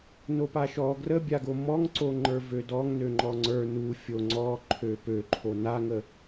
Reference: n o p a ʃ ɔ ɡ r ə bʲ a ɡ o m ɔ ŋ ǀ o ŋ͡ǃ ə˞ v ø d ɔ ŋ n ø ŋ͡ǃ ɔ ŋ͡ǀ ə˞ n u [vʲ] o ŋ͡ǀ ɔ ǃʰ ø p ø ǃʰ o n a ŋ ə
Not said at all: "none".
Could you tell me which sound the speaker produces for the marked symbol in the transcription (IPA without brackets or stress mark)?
fʲ